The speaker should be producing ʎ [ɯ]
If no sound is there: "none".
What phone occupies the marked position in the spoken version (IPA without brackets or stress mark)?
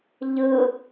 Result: ɯ